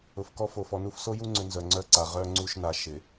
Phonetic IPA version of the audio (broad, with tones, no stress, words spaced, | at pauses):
ʊ˨fkɔ˦ fo˨fɔ˨nu˦f so˦ju˦ŋ͡ǀʏ˨ nzœ˨ŋ͡ǀœ˦ǀa˨ ʁœ˦ ŋ͡ǀu˦ʃna˨˦ ʃɪ˨